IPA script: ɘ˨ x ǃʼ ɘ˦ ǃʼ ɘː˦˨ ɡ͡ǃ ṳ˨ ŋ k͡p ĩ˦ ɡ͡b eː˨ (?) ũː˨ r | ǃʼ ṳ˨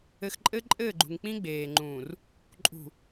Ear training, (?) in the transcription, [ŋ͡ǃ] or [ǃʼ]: ŋ͡ǃ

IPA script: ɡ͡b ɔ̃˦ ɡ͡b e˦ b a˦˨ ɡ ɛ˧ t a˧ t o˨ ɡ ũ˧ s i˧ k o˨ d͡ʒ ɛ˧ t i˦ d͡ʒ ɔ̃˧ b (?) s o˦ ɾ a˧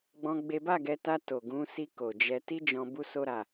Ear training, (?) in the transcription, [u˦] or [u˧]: u˦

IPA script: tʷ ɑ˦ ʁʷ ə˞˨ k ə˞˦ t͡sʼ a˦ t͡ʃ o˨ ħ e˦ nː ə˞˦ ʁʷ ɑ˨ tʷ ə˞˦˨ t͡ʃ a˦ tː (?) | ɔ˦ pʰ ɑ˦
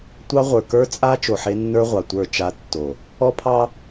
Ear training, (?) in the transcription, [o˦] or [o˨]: o˨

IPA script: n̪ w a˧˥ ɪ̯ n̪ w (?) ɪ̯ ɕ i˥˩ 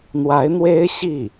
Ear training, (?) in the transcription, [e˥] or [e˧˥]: e˥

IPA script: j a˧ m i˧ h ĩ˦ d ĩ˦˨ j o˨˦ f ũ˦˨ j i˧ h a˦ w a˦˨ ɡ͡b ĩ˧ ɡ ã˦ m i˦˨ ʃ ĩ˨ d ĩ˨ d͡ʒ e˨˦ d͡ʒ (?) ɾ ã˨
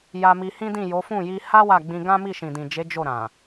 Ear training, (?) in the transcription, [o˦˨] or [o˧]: o˦˨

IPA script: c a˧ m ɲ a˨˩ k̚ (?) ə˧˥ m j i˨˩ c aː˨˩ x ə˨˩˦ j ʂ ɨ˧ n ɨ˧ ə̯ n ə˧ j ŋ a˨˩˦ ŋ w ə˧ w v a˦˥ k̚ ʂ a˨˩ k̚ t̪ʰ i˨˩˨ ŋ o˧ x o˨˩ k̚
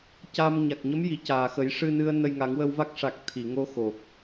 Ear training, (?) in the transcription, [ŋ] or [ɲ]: ɲ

